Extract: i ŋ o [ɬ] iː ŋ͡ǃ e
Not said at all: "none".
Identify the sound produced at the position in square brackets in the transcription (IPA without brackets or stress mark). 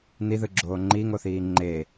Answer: θ